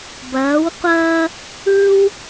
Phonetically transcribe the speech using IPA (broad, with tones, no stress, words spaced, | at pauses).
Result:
bɐː˩˧wqʷɐː˧ | ɯː˥w